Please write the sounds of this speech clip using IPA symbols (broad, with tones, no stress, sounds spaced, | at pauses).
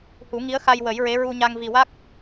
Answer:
h u˨˩˦ ŋ i˧˥ ə̯ x a˧ j w ə˨˩˦ j ɹ e˧˥ ɹ u˧ ɲ a˧ ŋ v i˨˩ w a˦˥ k̚